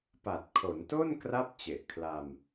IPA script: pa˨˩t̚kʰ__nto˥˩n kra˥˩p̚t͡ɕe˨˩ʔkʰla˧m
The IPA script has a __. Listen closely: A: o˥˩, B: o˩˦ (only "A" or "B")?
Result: B